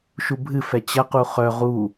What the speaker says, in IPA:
ʃ u bʱ ɨ f ɛ t͡ɕ ɐ q u χ œ ʁ u

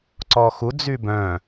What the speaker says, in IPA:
ǀ ɔ x u d͡z y b œ̃

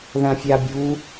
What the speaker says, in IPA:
ð ã fʲ a bʲ u

